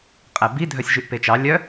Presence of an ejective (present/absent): present